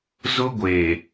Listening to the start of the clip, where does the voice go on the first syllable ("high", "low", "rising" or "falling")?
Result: high